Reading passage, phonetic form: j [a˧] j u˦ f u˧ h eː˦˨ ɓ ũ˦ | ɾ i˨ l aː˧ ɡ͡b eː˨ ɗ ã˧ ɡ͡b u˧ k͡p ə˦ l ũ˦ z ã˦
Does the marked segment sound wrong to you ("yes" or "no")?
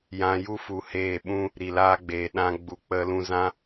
yes